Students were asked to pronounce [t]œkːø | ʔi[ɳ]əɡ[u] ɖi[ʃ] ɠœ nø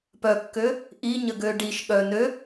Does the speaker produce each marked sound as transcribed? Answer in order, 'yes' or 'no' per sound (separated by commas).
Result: no, no, no, yes